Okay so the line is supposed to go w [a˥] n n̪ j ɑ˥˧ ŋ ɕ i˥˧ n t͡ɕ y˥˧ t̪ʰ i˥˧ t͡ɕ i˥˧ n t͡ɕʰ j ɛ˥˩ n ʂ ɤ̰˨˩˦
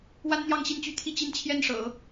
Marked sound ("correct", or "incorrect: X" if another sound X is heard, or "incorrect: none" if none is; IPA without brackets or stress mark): correct